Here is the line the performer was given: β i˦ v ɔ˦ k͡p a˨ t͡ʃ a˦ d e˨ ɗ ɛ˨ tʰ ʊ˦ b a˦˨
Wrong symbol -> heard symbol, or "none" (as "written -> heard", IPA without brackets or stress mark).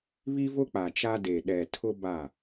ɔ˦ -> ʊ˦